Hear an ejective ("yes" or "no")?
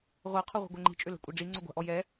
yes